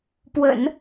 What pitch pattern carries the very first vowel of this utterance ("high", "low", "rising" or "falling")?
low